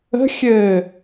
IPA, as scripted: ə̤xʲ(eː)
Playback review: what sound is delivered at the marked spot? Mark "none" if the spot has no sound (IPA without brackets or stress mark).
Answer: ɘː